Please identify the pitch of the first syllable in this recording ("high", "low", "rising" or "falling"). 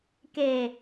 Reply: low